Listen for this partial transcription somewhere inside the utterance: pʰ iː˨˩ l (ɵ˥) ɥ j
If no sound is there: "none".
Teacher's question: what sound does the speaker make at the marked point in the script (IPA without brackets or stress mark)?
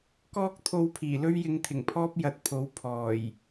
ɵ˥